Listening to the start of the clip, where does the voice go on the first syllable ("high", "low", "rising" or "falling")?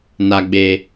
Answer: low